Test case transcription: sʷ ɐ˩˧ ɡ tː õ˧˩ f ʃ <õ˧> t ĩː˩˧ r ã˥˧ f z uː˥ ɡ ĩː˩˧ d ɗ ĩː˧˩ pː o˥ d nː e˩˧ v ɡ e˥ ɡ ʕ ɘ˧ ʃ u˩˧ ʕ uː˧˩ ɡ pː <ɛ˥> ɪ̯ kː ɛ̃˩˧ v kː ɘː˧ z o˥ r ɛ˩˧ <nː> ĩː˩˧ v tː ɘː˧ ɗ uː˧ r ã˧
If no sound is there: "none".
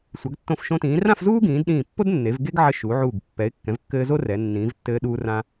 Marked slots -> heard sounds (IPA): õ˧, ɛ˩˧, nː

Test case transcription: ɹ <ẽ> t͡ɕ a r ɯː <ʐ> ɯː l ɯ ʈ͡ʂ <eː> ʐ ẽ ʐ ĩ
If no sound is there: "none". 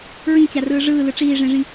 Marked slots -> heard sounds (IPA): ĩ, ʐ, iː

